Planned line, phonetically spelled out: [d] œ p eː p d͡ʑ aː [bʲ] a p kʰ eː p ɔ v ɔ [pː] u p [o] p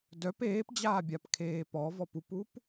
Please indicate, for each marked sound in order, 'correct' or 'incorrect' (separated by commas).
correct, correct, incorrect, incorrect